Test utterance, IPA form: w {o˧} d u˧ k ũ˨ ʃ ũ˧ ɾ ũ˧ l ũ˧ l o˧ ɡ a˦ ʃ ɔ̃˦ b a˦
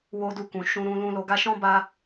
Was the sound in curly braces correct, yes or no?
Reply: yes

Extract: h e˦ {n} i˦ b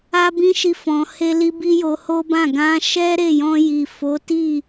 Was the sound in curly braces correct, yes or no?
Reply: no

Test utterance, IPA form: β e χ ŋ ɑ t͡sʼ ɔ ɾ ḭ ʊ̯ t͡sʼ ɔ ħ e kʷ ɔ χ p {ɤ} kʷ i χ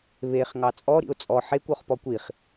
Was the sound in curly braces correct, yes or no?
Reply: no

